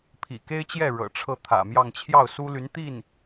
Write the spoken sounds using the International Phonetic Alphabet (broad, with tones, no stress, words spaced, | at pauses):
pʰḭ˨˩ke˥ɪ̯t͡ɕjɛ˥˩ ɻɤ̰˨˩ʈ͡ʂʰɤ˥˩ t̪ʰä̰˨˩mjɑ˥˧ŋ t͡ɕʰjɑ˥˩ʊ̯su˥ly˧˥n t̪i˥˩n